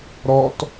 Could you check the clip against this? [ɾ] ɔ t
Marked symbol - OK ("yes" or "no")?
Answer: yes